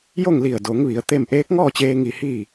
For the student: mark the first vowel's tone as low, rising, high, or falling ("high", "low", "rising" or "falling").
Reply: falling